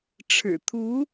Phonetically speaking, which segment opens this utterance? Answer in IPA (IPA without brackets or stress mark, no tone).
ʈ͡ʂʰ